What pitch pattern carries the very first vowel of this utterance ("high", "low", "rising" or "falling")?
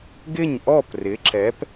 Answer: falling